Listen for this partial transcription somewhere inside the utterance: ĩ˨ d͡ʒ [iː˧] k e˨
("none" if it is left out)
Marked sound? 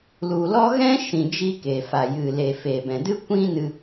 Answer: i˧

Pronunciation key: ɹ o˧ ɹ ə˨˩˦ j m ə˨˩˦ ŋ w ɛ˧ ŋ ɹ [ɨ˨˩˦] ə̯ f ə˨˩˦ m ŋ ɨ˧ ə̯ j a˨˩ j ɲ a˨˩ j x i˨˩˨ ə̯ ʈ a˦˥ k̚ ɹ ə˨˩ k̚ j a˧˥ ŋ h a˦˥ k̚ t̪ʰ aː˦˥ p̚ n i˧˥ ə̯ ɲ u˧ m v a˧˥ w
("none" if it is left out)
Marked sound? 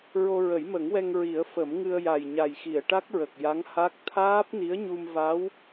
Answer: i˨˩˦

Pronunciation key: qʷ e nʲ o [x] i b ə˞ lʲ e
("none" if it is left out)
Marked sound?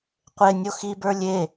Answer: x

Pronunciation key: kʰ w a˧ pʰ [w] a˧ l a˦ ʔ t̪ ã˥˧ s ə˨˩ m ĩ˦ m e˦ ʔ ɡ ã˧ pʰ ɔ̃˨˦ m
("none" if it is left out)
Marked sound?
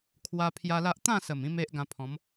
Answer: j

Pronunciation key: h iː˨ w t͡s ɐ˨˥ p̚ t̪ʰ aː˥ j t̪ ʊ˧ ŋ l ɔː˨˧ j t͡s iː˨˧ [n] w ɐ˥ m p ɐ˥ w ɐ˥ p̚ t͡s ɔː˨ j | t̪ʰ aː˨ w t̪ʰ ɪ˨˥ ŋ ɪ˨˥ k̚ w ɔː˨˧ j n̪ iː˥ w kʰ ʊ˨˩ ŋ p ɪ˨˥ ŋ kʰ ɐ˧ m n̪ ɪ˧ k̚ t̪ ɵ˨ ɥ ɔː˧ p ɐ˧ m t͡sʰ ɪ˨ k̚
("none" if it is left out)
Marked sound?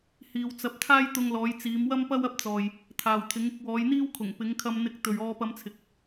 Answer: m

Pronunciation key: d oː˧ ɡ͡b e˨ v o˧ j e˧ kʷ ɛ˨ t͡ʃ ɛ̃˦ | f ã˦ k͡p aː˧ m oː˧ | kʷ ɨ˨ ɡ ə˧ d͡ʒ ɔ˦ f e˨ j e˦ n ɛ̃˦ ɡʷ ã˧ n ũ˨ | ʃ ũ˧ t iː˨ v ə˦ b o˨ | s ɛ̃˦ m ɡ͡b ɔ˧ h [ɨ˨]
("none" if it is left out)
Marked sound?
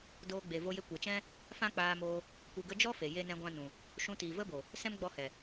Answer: ɛ˨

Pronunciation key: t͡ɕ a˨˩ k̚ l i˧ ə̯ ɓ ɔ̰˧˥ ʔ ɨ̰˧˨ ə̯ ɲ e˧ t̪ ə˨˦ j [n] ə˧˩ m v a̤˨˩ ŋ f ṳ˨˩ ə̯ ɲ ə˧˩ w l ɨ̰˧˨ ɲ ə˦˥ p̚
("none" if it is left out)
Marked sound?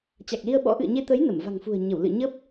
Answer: n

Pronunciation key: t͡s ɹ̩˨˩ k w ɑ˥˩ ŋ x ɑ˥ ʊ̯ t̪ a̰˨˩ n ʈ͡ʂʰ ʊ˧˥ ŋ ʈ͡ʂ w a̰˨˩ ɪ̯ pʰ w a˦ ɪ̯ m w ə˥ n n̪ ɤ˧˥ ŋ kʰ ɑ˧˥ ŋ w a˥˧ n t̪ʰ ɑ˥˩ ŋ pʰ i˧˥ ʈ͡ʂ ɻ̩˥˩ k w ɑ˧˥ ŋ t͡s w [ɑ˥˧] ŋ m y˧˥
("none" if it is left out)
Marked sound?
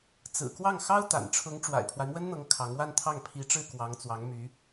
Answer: ɑ˧˥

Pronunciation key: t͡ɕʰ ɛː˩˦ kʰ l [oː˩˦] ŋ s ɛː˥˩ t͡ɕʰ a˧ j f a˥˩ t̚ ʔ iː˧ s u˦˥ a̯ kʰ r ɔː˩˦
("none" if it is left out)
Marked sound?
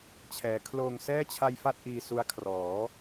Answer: oː˧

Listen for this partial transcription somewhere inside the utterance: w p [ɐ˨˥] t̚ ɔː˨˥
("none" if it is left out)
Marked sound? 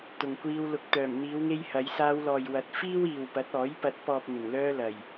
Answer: ɐ˨˥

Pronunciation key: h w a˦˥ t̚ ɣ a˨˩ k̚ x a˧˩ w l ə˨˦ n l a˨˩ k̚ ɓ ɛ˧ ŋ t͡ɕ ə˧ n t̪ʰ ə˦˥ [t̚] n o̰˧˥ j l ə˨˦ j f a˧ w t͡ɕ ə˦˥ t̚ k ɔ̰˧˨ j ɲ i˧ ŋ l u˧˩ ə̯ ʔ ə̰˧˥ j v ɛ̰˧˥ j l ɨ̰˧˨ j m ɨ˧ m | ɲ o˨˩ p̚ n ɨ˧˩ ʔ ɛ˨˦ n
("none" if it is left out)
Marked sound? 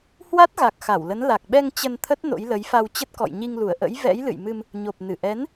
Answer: t̚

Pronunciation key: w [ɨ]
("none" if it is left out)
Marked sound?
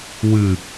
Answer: ɨ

